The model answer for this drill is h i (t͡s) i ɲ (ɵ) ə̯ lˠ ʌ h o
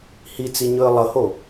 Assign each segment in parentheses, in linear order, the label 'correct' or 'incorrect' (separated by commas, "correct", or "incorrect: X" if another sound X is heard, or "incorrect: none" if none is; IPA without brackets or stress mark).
correct, correct